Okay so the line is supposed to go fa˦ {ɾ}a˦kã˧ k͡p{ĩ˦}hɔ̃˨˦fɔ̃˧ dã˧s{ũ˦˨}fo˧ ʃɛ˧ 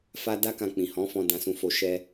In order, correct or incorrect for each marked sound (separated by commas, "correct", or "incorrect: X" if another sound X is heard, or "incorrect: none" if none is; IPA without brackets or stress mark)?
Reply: incorrect: d, incorrect: ĩ˨, incorrect: ũ˧